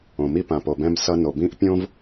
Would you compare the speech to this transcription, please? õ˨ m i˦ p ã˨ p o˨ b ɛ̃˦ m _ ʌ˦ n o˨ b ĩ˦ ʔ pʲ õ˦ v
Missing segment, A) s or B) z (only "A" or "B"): A